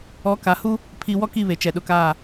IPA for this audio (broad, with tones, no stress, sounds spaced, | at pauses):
ɔ˨˦ k a˨ h u˦ | pʰ i˨ w ɔ˦ k i˦˨ β e˨ t͡ʃ ɛ˨ ɗ ʊ˨ k aː˦˨